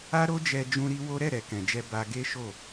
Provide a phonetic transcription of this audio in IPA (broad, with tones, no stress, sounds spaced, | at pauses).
a˦ ɾ o˦ d͡ʒ ɛ˧ d͡ʒ ũ˦ ɾ i˦ w o˦ ɾ ɛ˦˨ ɾ ɛ˨ k ɛ̃˨ d͡ʒ ɛ˧ b a˧ ɡ e˦ ʃ o˦˨